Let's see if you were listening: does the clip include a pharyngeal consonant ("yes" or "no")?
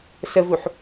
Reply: yes